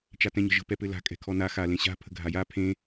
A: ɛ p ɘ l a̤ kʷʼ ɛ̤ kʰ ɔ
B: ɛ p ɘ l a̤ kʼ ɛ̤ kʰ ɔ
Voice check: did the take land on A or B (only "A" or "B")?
B